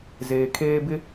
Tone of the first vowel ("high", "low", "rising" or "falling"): low